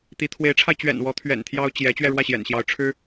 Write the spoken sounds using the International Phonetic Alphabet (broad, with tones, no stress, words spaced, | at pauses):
t̪i˧˥ t̪ʰwe˧˥ɪ̯ʈ͡ʂʰa˧ɪ̯t͡ɕɥɛ̰˨˩nwɔ˧˥ t̪ʰɥɛ̰˨˩nt̪ʰjɑ˥ʊ̯ t͡ɕjɛ˧˥ t͡ɕɥɛ˥˧ɻwä˥˩ɕjɛ̰˨˩nɕjɑ˧˥ʊ̯ ʈ͡ʂʰɻ̩˥